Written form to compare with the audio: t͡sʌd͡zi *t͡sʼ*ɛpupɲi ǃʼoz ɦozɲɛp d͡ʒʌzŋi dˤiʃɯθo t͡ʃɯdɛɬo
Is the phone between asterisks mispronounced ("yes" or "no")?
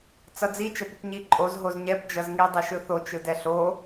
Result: yes